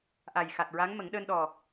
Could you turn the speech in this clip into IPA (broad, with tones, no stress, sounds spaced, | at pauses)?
ʔ a˨˩ j x a˨˩ t̚ ɹ a˧˥ ŋ m ə˨˩˦ ŋ ɗ əː˧ n ɗ ɔ˨˩